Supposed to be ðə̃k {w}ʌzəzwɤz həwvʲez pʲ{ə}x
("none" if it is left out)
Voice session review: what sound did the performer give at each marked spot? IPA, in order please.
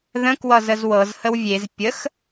w, ə

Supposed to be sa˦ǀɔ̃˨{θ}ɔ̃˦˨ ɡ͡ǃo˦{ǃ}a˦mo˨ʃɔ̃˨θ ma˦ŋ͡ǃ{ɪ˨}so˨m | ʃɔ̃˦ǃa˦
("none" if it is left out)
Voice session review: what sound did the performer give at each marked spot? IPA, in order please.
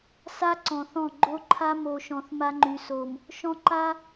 θ, ǃʰ, y˨

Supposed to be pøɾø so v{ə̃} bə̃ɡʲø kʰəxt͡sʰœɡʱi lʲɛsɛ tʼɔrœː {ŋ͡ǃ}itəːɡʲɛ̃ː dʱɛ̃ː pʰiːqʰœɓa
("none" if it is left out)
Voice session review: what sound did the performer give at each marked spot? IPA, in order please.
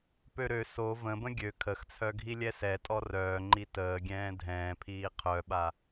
ə̃, ŋ͡ǃ

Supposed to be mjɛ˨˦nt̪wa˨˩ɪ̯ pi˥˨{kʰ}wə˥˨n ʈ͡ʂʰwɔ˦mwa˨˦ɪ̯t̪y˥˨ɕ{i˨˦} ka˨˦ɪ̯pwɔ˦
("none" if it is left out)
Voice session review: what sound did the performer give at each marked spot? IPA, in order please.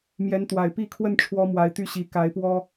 kʰ, i˨˦

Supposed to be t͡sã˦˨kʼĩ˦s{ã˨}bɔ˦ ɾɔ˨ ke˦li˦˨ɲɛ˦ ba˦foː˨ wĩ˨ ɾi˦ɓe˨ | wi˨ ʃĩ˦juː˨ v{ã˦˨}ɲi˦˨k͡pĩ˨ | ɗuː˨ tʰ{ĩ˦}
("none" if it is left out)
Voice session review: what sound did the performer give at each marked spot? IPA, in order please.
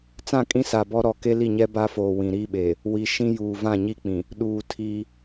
a˨, ã˦˨, i˦

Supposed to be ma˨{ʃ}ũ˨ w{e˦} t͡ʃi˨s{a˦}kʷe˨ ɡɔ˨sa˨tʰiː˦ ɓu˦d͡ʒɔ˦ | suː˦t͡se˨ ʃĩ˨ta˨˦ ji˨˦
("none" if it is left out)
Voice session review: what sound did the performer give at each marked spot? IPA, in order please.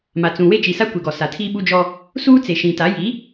t͡s, e˦, a˦

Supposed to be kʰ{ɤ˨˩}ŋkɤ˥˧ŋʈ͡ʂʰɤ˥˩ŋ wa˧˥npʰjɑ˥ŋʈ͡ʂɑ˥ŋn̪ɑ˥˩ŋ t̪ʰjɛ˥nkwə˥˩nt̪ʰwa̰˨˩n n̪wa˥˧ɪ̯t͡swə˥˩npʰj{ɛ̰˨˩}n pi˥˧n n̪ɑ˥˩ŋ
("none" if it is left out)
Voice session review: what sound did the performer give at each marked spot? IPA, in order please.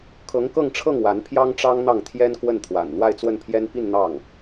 ɤ˧˥, ɛ˥

